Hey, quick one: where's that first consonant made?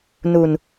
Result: tongue tip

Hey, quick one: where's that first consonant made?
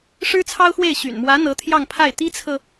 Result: retroflex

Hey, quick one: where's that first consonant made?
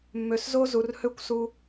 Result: lips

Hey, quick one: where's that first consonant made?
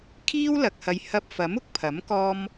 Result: velum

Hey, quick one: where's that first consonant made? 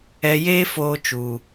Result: palate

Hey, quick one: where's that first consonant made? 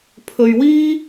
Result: lips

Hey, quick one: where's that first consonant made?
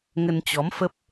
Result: velum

